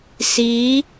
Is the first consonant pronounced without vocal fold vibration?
yes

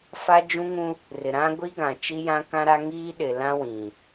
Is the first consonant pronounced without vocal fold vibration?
yes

